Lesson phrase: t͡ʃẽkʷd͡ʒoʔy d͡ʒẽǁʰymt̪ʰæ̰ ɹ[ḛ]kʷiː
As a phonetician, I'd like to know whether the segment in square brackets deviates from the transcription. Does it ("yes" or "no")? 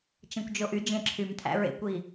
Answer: no